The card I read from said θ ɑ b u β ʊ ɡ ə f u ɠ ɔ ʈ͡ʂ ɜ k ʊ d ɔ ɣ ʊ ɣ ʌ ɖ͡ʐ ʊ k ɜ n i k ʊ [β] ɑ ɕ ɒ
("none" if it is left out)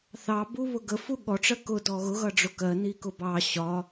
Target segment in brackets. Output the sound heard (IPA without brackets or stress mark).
b